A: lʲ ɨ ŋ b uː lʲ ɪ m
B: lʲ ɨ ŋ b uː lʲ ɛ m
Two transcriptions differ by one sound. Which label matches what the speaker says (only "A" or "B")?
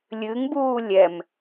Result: B